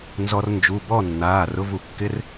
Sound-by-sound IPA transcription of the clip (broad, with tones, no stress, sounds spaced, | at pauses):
n z ɔ˧ r n d͡ʒ u˩˧˩ b ɔ˥˨ nː aː˩˧˩ r ʊ˧ v u˩˧ kː ɪ˧˥˧ r